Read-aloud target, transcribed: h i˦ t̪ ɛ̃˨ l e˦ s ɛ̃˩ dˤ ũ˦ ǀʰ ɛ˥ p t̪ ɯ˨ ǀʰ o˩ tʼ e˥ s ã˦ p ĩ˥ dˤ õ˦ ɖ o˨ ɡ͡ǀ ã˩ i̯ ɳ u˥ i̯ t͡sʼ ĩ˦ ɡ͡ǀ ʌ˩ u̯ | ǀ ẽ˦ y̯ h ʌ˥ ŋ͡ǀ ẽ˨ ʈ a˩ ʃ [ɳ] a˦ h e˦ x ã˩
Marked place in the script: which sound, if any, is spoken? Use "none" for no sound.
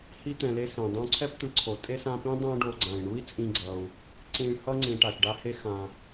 ɖ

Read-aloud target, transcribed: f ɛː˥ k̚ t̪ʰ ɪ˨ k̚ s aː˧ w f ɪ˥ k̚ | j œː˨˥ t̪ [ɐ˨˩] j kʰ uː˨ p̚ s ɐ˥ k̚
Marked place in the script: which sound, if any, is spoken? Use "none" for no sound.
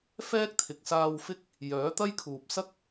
ɐ˥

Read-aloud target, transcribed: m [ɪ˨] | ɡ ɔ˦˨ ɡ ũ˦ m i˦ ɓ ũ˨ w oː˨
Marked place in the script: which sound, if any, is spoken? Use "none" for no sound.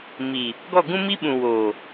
i˨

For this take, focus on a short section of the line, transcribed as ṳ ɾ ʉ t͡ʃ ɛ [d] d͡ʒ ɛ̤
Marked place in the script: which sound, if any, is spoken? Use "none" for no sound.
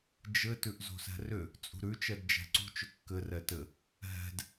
d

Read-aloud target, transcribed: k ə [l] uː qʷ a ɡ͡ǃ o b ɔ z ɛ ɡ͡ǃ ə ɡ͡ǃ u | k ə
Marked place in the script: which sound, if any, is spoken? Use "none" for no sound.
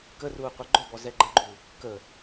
r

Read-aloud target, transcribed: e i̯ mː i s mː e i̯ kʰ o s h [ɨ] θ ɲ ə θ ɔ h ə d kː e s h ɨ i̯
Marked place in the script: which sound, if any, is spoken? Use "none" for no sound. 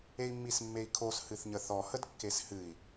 ɨ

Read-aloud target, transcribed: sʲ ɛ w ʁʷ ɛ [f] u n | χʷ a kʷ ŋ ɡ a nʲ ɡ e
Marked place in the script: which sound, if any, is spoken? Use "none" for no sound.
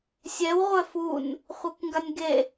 f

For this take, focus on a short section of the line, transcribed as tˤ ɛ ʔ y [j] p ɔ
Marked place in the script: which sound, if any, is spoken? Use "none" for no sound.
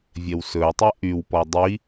w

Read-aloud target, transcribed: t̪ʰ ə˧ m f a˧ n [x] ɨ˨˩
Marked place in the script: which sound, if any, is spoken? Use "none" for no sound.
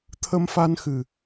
x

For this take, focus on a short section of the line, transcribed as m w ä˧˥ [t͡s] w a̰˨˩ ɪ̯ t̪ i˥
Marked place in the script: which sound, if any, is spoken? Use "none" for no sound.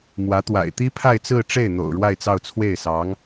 t̪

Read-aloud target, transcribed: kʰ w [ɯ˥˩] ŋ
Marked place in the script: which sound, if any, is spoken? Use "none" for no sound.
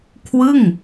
ɯ˥˩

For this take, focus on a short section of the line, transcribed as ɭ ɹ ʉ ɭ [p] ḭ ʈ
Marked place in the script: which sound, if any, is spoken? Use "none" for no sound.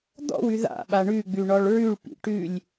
p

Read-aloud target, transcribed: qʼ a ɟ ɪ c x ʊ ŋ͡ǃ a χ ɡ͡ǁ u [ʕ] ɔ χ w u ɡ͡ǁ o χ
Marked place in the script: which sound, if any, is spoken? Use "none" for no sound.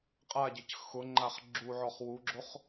ʕ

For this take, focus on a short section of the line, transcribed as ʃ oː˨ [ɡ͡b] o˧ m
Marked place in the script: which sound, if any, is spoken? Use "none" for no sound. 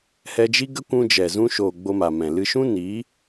ɡ͡b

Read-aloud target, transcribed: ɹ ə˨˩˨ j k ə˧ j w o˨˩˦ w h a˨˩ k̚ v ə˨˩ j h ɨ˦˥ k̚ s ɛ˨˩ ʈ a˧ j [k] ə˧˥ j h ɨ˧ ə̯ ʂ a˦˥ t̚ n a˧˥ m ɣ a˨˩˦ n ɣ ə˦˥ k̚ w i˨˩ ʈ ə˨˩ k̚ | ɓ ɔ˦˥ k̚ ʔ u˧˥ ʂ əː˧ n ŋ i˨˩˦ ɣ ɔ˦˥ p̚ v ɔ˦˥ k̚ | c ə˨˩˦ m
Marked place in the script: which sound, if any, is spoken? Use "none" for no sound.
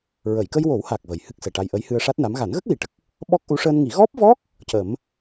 ʔ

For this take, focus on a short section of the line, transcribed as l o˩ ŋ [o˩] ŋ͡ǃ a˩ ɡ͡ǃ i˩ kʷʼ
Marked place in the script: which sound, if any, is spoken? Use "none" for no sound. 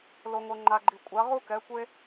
o˩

